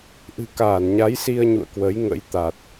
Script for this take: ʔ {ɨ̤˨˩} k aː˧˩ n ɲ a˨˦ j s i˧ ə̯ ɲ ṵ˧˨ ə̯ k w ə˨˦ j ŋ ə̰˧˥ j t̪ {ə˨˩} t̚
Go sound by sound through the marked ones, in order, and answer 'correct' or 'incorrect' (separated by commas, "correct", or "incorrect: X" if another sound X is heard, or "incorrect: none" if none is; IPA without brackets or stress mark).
correct, incorrect: a˨˩